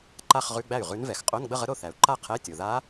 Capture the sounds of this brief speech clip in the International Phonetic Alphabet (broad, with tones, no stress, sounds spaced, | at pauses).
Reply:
ǃ a˥˧ χ ʁ ʉ˧˥˧ ɡ͡b æ˥˩ y̯ ʁ ʉ˧˥ n v ɛ˩ x qʼ o˧˥˧ n ɡ͡b ə˥˧ ʁ ə˧˥ ɾ o˥˩ θ æ˩ u̯ ǃ a˥˧ qʰ ɛ˧˥˧ tʲ o˩ ð a˧˥